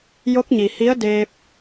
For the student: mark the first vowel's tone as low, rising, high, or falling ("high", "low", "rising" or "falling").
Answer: rising